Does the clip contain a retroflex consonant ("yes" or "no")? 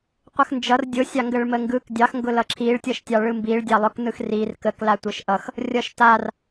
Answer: yes